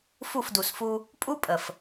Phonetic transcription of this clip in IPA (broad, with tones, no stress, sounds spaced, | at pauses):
f u˦˨ f d u˨ s f u˦ | pʼ u˦ pʼ ə˨ f